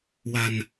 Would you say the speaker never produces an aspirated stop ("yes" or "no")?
yes